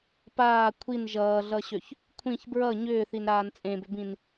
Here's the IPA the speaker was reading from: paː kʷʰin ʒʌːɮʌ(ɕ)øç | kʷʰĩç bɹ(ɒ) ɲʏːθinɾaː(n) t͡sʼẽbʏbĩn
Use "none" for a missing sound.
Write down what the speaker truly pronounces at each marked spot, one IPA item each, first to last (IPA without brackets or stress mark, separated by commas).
ɕ, ʌ, n